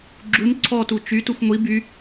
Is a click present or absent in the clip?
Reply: present